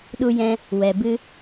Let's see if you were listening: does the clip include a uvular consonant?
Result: no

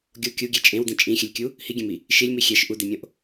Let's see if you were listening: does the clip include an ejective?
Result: yes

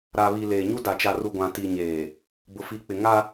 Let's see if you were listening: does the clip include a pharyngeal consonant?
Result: no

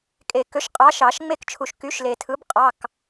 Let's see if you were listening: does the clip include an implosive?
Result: no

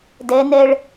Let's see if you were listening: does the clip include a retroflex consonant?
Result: yes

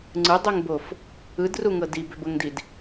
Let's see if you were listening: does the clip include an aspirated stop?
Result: no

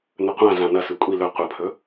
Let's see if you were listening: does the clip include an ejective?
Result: yes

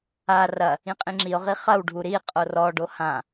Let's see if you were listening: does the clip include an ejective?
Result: yes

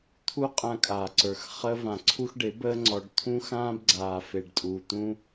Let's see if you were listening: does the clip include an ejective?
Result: yes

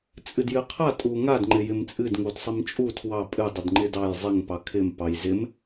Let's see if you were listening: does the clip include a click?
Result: yes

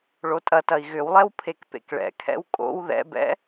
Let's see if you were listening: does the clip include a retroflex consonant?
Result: yes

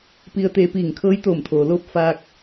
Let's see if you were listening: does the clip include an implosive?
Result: no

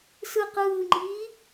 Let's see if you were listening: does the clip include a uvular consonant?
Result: yes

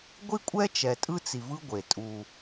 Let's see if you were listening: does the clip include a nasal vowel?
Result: no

